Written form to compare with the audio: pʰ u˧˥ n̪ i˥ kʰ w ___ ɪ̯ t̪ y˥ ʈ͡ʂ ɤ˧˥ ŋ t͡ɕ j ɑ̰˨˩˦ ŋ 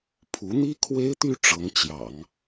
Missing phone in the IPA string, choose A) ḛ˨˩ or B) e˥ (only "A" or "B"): B